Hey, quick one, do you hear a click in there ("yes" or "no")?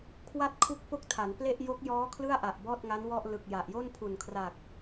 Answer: no